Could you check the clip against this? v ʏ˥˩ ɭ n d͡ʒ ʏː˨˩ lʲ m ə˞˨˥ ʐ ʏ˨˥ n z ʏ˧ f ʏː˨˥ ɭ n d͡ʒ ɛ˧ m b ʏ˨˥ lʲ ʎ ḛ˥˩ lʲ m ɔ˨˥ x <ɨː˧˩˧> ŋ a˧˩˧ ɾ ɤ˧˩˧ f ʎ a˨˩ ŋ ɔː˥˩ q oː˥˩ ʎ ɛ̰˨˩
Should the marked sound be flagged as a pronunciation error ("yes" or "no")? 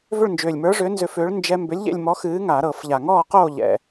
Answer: yes